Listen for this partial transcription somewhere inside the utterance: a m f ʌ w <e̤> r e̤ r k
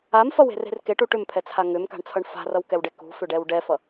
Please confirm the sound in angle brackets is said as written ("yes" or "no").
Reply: yes